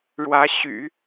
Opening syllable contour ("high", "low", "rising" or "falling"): rising